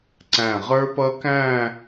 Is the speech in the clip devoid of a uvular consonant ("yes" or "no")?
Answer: no